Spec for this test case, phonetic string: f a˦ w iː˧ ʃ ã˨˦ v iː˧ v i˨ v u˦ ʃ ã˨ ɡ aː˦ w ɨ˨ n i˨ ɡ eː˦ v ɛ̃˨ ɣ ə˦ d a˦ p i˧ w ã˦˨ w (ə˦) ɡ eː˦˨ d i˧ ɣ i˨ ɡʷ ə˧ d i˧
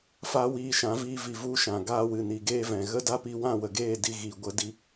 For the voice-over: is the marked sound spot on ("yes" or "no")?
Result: no